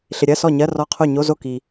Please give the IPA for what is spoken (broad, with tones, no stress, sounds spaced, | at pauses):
ɬ ɪ˨ ɾʲ ɜ˧˥˧ s ɔ˥˩ ɲ ɜ˧˥˧ r ɔ˧˥˧ qʰ o˥˩ ɲ o˧˥˧ z o˥˩ k i˨